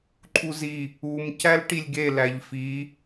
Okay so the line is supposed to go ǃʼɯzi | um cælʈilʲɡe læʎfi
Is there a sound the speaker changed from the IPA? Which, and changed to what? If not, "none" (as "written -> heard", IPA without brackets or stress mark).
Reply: ɯ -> u